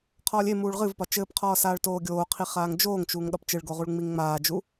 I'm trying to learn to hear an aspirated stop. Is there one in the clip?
yes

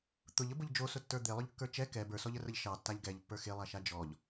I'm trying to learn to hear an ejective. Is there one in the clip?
no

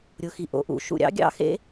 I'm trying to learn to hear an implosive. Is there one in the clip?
no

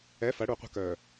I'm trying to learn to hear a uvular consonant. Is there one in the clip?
yes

